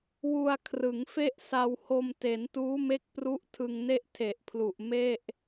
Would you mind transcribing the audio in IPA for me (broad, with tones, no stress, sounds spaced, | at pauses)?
w u˧ a̯ kʰ r ɯ˩˦ ŋ f e˥˩ ʔ s a˧ w h o˧ m t e˩˦ n t uː˦˥ m e˦˥ k̚ p r u˦˥ ʔ tʰ ɯ˧ ŋ n e˥˩ ʔ tʰ e˨˩ ʔ pʰ l u˨˩ ʔ m e˥˩ ʔ